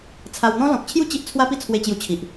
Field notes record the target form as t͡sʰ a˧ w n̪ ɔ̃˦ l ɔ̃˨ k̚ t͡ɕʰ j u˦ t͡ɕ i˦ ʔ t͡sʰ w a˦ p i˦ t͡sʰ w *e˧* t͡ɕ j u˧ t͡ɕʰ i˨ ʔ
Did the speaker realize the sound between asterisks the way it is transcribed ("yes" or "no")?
yes